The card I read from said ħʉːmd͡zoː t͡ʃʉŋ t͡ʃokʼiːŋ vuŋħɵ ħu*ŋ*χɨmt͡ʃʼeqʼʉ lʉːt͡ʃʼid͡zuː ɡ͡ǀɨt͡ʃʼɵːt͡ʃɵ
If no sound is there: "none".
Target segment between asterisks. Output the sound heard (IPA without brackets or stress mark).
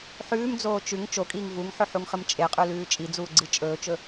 ŋ